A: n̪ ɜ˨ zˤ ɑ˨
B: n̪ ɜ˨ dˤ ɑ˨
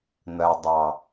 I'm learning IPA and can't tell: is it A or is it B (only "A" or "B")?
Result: B